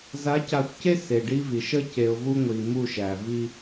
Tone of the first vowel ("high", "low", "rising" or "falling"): rising